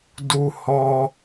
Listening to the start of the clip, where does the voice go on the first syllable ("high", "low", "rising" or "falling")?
high